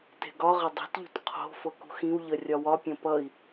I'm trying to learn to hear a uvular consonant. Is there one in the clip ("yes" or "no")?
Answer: yes